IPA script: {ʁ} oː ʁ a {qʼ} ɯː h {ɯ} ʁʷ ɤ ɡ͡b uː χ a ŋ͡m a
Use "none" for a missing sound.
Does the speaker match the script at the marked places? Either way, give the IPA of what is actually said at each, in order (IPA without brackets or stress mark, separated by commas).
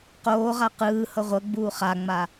q, q, ɤ